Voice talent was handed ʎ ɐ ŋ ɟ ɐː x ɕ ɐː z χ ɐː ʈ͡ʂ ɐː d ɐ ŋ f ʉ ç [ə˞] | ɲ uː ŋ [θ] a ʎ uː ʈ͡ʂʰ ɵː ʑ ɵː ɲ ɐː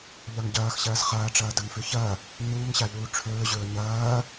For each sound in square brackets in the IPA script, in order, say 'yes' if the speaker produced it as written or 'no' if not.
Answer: no, no

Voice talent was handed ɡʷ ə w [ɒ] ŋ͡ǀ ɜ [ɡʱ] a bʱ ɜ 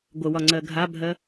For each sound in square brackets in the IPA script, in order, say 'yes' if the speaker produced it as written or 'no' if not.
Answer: yes, yes

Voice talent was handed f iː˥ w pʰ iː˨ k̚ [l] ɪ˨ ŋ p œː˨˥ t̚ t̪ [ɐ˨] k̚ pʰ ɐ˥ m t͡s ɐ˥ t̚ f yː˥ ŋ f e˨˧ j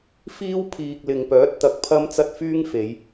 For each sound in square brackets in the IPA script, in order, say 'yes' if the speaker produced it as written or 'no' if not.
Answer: yes, yes

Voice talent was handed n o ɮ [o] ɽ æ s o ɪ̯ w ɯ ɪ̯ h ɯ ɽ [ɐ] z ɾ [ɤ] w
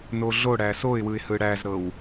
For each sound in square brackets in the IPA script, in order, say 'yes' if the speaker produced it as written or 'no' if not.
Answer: yes, no, yes

